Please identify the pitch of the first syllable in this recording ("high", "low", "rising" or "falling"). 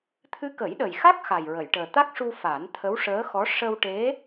rising